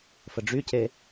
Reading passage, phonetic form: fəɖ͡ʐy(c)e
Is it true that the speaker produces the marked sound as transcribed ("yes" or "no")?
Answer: yes